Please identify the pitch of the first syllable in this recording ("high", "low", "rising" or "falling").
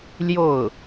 falling